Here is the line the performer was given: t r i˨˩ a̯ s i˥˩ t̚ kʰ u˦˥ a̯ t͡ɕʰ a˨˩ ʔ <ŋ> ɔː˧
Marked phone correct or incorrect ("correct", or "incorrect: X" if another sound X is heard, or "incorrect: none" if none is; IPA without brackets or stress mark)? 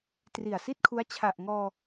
correct